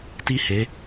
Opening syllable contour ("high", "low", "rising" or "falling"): high